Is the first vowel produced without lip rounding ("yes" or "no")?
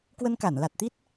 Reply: yes